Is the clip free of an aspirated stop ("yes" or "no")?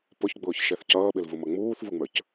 yes